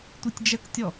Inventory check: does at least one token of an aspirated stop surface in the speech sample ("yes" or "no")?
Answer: no